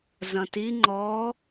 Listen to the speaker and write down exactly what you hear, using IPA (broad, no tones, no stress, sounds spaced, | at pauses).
z ɐ̃ t i ŋ͡ǃ ɔ